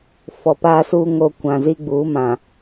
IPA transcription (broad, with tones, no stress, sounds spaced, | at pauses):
f ɔ˨ p aː˦ s uː˦ ŋ o˦ kʷ ã˨ z i˦ ɡ͡b uː˨˦ m ã˨